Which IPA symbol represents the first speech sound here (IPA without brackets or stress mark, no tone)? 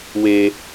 w